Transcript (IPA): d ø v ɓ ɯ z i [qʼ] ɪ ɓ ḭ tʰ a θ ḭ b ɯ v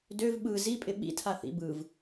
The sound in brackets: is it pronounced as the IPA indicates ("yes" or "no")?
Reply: no